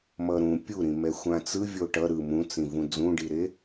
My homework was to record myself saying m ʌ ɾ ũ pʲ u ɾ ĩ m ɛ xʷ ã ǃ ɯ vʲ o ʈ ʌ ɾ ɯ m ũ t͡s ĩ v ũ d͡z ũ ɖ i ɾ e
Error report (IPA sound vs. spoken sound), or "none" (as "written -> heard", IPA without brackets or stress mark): ǃ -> t͡s